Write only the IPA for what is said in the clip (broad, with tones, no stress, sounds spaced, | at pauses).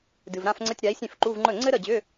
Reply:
d ɨ˨ v ɾ ã˥˧ f ŋ͡ǀ ə˧˥˧ tʲ ɾ a˨˥ i̯ sʲ ẽ˥˩ f ǃ u˧˥˧ v ŋ͡ǃ ɵ˥˩ ŋ͡ǀ ɘ˥ ɾ ə˥˩ d͡ʑ ʏ˧˥˧